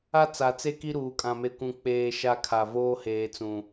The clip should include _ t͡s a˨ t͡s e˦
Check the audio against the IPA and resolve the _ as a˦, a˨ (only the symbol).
a˦